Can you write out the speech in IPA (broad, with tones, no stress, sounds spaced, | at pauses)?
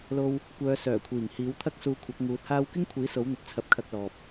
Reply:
l o˧ w | kʷ œː˨˧ s œː˨˩ kʷʰ iː˨˩ ŋ h iː˨˥ w t̪ʰ ɐ˥ k̚ s uː˧ kʷʰ ɐ˨˥ k̚ ŋ uː˨˥ t̚ h aː˥ w k ɪ˥ ŋ kʷʰ iː˨˥ s o˨˥ w n̪ ɵ˨ t̚ t͡sʰ ɐ˧ p̚ kʰ ɐ˧ k̚ l ɔː˨ p̚